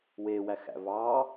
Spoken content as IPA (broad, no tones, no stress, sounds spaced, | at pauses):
w e w æ x æ̰ v ɑ